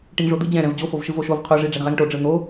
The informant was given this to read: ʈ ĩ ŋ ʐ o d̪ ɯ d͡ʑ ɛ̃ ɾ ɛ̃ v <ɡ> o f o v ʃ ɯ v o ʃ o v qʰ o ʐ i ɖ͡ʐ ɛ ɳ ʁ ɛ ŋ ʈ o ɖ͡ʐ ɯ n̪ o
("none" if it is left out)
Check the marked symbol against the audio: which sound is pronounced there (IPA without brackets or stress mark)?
d͡ʑ